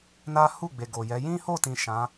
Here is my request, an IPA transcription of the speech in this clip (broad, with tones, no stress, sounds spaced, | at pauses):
n a˦ h u˦˨ ɡ͡b e˨ ɡ o˨ j ɛ˨˦ j ĩ˦ h o˦˨ t ĩ˨ ʃ ã˨˦